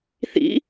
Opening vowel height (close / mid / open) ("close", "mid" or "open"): close